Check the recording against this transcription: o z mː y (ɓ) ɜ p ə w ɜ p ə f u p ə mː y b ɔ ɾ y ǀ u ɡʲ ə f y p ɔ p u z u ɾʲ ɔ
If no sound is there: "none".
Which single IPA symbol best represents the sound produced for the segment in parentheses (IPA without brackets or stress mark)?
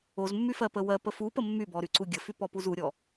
f